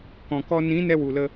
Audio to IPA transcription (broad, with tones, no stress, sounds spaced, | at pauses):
k ɔ̃˨ k ɔ˧ n ĩ˨˦ n ɛ˦ w u˨ l ə˧